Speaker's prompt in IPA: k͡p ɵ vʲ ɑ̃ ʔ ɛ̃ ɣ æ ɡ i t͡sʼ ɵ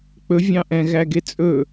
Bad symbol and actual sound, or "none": i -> e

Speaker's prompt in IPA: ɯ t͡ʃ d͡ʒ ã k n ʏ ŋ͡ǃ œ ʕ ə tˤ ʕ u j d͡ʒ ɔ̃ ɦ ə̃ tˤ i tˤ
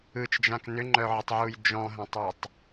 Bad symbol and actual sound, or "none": none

